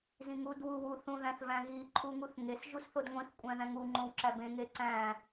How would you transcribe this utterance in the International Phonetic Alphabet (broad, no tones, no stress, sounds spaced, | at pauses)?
z ĩ ŋ u d w u w u θ ũ ð æ̃ θ v æ̃ ɣ i ǃʰ u ŋ u θ ŋ e s ʒ u s θ o d ŋʷ ĩ θ kʷʼ æ̃ ð æ̃ ŋ u ŋ͡ǃ õ w ǁ æ b ẽ ŋ e ǀ æ̃